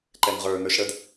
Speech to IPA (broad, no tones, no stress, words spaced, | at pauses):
ǃɛŋʁə˞ nə˞ʃɽəd